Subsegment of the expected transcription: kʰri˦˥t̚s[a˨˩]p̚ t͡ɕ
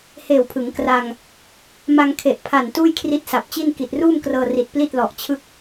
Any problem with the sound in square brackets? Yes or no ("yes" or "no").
no